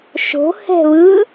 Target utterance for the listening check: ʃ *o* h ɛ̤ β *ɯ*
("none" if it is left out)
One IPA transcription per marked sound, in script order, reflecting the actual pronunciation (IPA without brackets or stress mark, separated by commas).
o̤, ɯ